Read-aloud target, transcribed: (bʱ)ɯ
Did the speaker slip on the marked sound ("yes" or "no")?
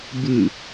yes